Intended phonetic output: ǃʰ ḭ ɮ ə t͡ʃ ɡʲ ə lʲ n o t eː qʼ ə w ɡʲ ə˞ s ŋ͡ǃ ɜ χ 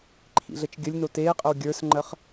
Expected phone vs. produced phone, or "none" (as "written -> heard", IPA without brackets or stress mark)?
none